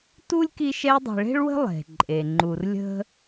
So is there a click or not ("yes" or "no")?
yes